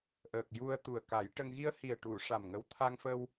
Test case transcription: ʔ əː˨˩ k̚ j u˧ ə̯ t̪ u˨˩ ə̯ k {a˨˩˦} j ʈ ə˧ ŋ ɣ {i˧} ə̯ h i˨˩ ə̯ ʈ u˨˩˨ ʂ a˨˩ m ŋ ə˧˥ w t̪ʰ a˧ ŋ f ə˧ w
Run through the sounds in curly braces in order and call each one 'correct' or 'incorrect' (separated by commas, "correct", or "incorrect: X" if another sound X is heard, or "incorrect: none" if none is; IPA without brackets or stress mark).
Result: correct, correct